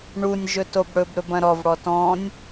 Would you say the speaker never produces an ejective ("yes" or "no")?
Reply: yes